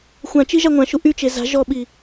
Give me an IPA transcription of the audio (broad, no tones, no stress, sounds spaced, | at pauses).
xʷ ã t͡ʃ i ʒ a ŋʷ ã ʃ u ʔ y t͡ʃ e z a̤ ʒ ɔ ɓ i